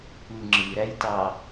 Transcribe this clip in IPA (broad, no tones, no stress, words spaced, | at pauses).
kʷɯ ŋ͡ǁɯɾæjtɑ